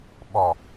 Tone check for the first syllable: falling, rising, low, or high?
low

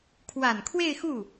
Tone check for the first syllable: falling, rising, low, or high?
low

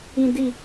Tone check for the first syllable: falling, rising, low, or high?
low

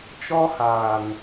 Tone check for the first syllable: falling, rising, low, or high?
high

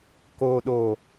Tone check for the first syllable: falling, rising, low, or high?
low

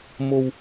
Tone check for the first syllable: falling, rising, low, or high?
low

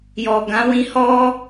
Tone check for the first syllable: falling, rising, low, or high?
low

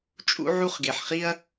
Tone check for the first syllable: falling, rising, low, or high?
high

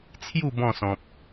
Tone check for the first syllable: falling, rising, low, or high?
falling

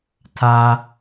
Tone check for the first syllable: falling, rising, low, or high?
low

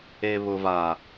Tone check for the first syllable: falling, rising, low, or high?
low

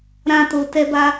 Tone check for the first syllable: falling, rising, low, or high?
high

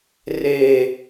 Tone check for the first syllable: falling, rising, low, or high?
low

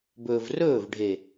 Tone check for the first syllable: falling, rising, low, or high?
low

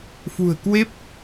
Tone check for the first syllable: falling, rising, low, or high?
low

